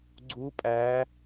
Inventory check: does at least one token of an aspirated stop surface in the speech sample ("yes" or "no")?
no